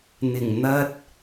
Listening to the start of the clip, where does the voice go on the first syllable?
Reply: low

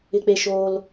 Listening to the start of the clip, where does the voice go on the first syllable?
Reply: low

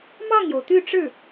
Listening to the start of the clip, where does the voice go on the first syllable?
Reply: falling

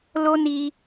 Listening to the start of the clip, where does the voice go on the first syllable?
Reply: high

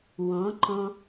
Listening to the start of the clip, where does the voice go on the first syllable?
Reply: rising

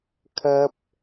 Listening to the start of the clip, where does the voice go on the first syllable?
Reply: high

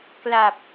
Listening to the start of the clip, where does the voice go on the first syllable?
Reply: low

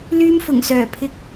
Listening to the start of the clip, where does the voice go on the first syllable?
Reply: high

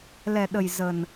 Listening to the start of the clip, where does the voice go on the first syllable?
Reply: low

